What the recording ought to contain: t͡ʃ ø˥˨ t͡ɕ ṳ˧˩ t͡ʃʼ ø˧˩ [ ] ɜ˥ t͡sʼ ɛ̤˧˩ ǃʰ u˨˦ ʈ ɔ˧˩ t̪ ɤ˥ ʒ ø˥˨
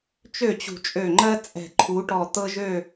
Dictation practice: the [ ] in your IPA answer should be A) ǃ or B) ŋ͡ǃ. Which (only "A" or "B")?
B